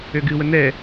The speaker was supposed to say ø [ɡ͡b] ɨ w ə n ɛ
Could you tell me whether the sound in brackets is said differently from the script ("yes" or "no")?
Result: yes